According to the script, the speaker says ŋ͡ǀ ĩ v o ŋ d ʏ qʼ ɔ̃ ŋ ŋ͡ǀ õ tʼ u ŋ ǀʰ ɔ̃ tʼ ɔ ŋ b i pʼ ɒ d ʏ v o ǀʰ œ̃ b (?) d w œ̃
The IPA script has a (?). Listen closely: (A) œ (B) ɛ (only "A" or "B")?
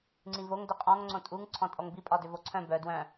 A